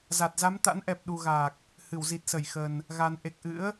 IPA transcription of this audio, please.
za˨˩t̚za˨˦mt̪a̰˧˥nʔɛ˨˩p̚ ɗu˨˩ɣaː˨˩k̚ | hɨ˧˩w zi˨˩t̚sə˧˩jxə˨˩n | ɣa˨˩nʔe˨˩k̚ ʔɨ̰˧˥ə̯

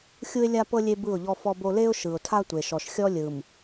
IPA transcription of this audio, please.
xʲu˦ɪ̯lʲa˦pɤ˦ lʲe˦bɯ˦˨ʊ̯ʎɔ˦ fɔ˦bo˦ le˦ʊ̯ʃɯ˨ʊ̯tʰa˦ tʷe˨ʃɔ˨ʃxʲɔ˦ lʲɯ˨m

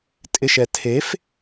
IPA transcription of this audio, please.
tʼɪʃɛ tʰef

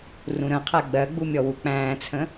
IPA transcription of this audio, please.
rũɾə̃qʰæ ɡ͡bɜɡ͡bu mʲɔwuk͡pæ̃ːt͡sʰə̃

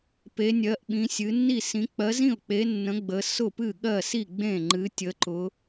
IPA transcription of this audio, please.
pe˨˦nʲɜ˨˦ʔ ɓĩ˨˦sʲɨ˨˦ nːi˥˩sĩ˨˦ k͡pɜ˨˦zĩ˥˩ʊ̯k͡pe˨˦ nːə̃˨˦ ɡ͡bə˨˦ sʊ˥˩pɨ˥˩ɠɜ˥˩si˥˩ ɡ͡bẽ˥˩ŋ͡ǃɨ˨˦ tʲə˨˦ǃʊ˨˦

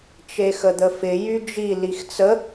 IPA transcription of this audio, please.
t͡ʃexəd̪əfɪ jyd͡ʒi lixt͡sə

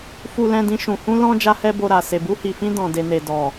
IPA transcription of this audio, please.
fu˨lɛ̃˨dĩ˨ ʃũ˨hũ˧lɔ̃˧ d͡ʒa˦hɛ˦bo˧ɾa˨ se˨bu˧hi˨fĩ˧ dɔ̃˨de˨ne˨ dɔ˨

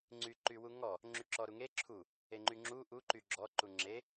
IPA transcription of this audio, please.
ŋ͡ǀyǃywuŋɔ | ŋ͡ǁyǁɔɾuŋe ǁʰu | eŋ͡ǃyŋ͡ǁu ʔu ǃyɡ͡ǁɔ ǃuŋ͡ǁe

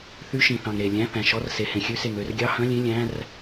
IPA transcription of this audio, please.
θy˧˥˧ʃĩ˨θɑ̃˨ŋ ɾe˨ lʲæ̃˧˥˧θæ̃˨ʃɔ˧˥˧rse˨ hẽ˨xʲʉ˧˥˧se˨ŋ ø˧˥˧r ɡʲɑ˧˥˧hœ̃˧˥˧lʲẽ˧˥˧ lʲæ̃˧˥˧r

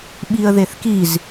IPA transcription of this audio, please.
ɓiə̯ðeθkiz

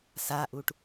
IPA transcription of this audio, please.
saʔuʈ

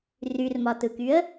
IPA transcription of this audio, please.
ryrmɒtɯkyə̯

